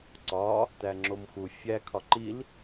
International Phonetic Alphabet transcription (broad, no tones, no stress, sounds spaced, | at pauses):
ǀ ɒ | t æ ŋ͡ǁ o m x u fʲ æ kʰ ɒ ǃ i l